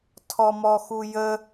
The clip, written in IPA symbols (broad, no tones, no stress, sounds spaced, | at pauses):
tʰ ɔ m ɔ x u j ə